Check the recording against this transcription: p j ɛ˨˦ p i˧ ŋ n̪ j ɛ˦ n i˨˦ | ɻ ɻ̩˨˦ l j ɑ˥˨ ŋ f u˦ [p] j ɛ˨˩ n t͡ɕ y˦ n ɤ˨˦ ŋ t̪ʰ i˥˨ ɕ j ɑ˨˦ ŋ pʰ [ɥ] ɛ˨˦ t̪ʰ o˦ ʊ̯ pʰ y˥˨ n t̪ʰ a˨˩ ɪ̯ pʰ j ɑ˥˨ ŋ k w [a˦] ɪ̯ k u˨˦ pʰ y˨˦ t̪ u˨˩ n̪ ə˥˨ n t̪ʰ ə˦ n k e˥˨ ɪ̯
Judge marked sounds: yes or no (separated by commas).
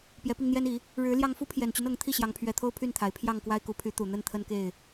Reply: no, yes, yes